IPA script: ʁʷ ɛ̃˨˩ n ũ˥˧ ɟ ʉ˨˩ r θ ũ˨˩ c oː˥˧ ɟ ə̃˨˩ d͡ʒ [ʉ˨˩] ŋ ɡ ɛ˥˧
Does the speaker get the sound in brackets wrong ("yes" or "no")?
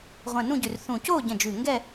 no